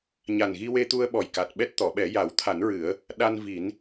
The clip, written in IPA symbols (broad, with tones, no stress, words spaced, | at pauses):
ɲa˨˩n ɣi˧we˧t̪u˧ə̯ ɓɔ˨˩jka˨˩t̚ɓɛ˦˥t̚ t̪ɔ˨˩˨ɓɛ˨˩˦ja˨˩˦w t̪ʰa˨˩˦nɹɨ˨˩˦ə̯ | ɗa˧nvi˨˩˦n